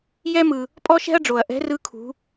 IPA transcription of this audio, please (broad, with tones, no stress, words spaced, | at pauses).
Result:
jɛ˥mɯ˩ | pʼɔ˥ʃɛ̤˥ɐ̯ɖ͡ʐo˩ɐ̯ ʔɛ̤˧˥rɯ˧˥kʰṳ˩˧